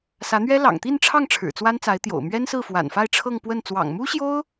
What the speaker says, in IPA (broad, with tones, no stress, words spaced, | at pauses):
sä˧˥n̪ɥɛ˥ lɑ̰˨˩ŋt̪i˥˧nʈ͡ʂʰɑ˥˩ŋ ʈ͡ʂʰɻ̩˨˩t͡swa˥nt͡sa˧˥ɪ̯t̪jo̰˨˩ʊ̯ mɥɛ˥nsɹ̩˥˩fwa̰˨˩nfa˥˧ɪ̯ ʈ͡ʂʰɤ˥˧ŋ pwə˥˩n t͡swɑ̰˨˩ŋmu˥ɕjo˥ʊ̯